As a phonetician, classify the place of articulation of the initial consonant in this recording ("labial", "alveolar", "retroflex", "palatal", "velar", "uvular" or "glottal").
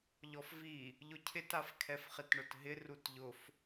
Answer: palatal